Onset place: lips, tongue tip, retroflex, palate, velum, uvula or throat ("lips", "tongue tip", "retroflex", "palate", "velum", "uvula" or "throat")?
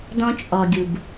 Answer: tongue tip